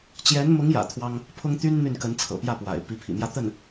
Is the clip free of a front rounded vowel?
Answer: no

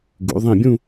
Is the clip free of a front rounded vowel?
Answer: yes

